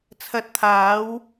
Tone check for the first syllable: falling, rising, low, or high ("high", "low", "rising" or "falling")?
rising